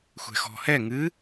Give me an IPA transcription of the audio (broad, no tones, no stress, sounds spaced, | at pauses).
xʷ ɛ̤ x ɔ̤ h ɛ ŋ ɨ